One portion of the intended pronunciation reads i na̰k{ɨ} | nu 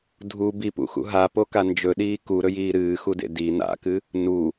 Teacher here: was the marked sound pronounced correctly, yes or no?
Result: yes